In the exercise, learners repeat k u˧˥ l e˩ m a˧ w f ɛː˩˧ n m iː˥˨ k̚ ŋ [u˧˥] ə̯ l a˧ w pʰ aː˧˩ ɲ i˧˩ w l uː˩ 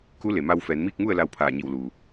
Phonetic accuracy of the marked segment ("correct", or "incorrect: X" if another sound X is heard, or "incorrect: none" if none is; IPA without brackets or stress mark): incorrect: u˥˨